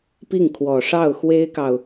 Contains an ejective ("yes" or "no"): no